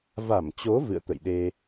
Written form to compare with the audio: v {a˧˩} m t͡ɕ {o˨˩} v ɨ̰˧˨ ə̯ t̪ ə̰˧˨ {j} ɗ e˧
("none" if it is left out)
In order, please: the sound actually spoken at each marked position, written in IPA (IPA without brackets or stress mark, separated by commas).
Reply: a˧˩, o˨˦, j